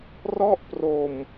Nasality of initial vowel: oral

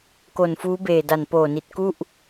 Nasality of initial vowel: oral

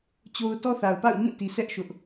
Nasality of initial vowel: oral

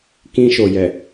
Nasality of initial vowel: nasal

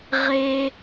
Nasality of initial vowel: oral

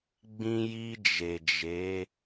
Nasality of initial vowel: nasal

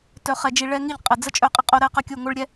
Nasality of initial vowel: oral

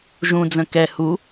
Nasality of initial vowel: nasal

